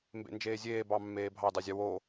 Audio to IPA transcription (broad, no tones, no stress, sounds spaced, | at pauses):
m b ḛ n d͡ʒ eː zʲ eː b ɑ mː eː bʱ ɑ d ɑ zʲ ɑ w oː